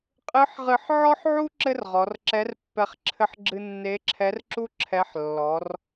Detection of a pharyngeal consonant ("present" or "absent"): present